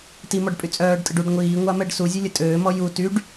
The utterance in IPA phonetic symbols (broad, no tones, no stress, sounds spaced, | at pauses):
t i m ɔ ɖ pʼ y t͡sʼ œː ɖ tʼ ə ɖ u ɖ ŋʷ iː ŋʷ a m ɛ ɖ s u zʲ œ lʲ ə tʼ øː m ɔ j u t y ɖ